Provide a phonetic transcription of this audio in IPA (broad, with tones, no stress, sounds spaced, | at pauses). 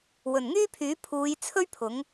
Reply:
w ɵ˨˩ n ŋ yː˥ pʰ yː˨˥ pʰ uː˨˧ j t͡sʰ ɵ˥ ɥ pʰ ʊ˨˥ ŋ